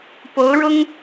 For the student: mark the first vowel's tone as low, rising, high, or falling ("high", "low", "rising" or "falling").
rising